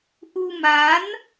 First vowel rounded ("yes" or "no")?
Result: yes